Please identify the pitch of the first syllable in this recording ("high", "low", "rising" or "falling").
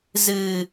low